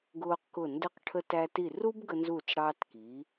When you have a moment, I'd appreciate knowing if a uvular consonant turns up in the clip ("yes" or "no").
yes